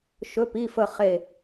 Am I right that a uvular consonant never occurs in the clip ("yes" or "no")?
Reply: no